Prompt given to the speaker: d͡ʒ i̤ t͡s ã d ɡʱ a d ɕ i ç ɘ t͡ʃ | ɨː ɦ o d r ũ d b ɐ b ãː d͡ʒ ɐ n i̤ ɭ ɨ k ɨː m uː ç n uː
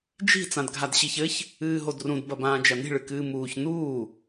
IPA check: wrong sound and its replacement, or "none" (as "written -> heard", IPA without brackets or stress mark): t͡ʃ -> ç